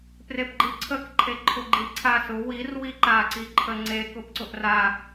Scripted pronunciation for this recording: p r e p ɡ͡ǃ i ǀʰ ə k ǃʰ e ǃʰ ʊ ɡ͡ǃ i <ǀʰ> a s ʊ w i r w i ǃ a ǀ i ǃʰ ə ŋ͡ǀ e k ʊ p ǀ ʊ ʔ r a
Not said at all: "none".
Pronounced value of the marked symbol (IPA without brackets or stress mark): ǀʰ